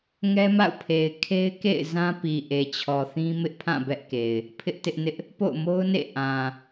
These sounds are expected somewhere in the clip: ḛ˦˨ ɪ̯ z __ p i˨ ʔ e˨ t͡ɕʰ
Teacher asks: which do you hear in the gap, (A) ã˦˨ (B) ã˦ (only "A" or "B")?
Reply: B